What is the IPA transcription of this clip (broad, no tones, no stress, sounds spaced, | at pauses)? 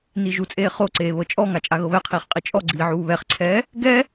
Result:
n i ʒ u t͡sʼ eː χ o ǀ eː β ɤ t͡ʃʼ ɔ ŋ a t͡ʃʼ a ɣ ɤ β ɛ qʰ iː χ qʼ i t͡ʃʼ ɔ ɡ͡ǀ iː ʕ uː β ɛ χ ǀʰ ɛː | ɡ ɛ